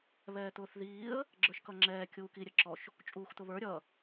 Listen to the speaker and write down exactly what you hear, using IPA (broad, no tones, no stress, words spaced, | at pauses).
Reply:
βɛːt̪ʊːθðiːə̯ | ɡ͡ǁə˞ʃkʌŋ͡ǁɛː kʲuːki ɾʲəǁɔʃ | t͡ʃʼuːxt̪ʊβə˞ ɾʲʌ